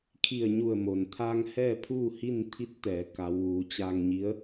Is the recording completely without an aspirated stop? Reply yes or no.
no